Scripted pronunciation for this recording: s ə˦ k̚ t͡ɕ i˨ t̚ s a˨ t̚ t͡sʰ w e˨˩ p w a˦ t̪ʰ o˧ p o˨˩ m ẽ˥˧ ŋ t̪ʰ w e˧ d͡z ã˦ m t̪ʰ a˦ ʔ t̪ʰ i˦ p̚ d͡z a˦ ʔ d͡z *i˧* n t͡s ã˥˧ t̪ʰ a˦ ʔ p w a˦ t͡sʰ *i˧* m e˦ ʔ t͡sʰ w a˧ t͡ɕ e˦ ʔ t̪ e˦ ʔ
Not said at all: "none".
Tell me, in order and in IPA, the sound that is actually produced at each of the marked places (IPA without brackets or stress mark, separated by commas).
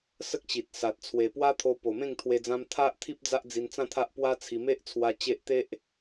i˧, i˧